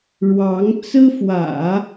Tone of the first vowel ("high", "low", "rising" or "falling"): rising